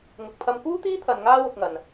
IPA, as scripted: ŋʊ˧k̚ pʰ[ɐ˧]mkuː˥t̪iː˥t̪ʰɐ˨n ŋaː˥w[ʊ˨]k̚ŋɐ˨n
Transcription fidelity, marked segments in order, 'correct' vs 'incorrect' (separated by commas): correct, incorrect